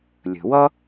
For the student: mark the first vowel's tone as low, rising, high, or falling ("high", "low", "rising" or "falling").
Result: low